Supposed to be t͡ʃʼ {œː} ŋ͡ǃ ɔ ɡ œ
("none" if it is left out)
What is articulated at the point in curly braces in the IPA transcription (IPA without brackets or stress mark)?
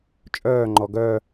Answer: œː